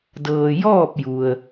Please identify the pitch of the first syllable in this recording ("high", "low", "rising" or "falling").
low